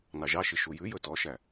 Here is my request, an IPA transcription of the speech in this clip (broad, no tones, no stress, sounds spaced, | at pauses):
n ɑ ʒ ɑ ʃ i ʃ u j ʉ j ɵ t ɔ ʃ æ